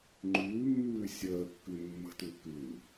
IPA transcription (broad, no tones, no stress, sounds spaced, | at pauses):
ŋ͡ǃ ʉː mː ʉː sʲ əː kː ʉ mː ə̤ t ʉ k ʉ